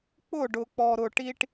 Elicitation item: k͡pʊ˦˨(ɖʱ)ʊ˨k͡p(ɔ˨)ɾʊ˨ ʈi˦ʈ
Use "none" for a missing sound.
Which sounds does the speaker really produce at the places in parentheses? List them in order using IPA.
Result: ɖ, ɔ˨

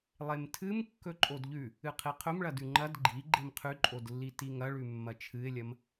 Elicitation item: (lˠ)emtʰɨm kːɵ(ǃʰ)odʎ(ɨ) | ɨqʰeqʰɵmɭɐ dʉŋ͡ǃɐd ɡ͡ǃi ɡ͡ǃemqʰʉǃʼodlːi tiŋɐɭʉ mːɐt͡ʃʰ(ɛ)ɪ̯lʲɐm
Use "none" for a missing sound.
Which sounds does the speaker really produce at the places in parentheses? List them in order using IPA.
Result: lˠ, ǃʼ, ʉ, ɨ

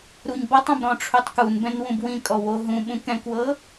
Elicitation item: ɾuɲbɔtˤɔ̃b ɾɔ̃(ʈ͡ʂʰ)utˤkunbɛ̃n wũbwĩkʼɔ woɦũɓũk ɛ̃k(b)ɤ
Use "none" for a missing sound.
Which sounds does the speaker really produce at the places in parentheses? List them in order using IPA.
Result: ʈ͡ʂʰ, w

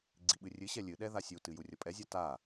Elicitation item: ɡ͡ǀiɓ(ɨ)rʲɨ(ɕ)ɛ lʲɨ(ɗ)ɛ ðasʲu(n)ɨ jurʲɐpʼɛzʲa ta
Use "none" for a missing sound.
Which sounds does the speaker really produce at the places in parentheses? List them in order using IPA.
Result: ɨ, ɕ, ɗ, t

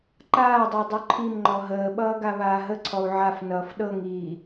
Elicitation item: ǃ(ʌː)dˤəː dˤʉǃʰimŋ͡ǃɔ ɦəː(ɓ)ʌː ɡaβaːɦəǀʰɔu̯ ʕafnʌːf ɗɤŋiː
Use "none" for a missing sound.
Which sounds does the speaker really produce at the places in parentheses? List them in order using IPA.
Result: aː, ɓ

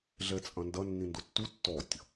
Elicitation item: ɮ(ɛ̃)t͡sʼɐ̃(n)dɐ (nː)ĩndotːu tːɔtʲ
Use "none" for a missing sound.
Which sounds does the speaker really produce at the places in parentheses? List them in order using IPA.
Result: ɛ, n, nː

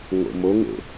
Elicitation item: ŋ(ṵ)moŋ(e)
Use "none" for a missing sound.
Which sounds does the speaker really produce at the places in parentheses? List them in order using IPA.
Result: o̰, ḛ

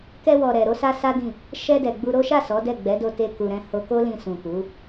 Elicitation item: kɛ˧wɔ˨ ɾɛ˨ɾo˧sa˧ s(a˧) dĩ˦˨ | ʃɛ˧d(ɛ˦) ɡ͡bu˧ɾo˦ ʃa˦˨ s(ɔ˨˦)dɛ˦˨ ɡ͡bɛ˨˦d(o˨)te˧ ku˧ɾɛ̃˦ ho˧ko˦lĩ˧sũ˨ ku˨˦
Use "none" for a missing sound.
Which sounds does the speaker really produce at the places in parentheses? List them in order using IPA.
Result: a˦, ɛ˨, ɔ˨˦, o˧

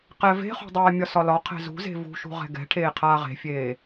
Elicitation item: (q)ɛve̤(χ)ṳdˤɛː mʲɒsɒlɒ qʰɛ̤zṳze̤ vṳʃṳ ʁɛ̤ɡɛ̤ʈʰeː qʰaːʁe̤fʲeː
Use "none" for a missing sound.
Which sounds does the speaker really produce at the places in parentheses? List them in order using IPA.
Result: q, χ

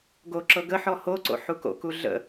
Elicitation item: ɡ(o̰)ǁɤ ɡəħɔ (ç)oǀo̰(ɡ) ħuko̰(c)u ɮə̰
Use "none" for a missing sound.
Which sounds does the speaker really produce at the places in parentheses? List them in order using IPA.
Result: o, h, none, k

